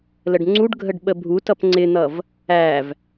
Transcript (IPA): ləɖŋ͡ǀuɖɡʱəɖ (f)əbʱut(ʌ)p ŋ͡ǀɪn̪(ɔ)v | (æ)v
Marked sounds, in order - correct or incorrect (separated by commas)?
incorrect, correct, incorrect, correct